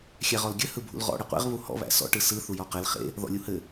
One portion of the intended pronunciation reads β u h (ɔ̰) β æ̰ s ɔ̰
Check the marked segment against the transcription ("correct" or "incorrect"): correct